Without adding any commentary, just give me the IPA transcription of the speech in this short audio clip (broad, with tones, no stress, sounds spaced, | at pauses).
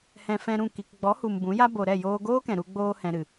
h ɛ̃˨ f ɛ̃˧ ɾ ũ˦˨ k i˨ k ɡ͡b ɔ˨˦ h u˨ m b ũ˨˦ j a˦ b o˨ ɾ ɛ˦˨ j oː˧ ɡ oː˦ k ɛ̃˨ ɾ u˧ ɡ͡b oː˧ h ɛ̃˨ ɾ ɨ˨